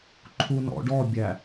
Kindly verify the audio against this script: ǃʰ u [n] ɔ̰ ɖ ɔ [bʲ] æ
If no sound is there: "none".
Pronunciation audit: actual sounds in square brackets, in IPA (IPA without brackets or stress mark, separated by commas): n, bʲ